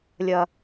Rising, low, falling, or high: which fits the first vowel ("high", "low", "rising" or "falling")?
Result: low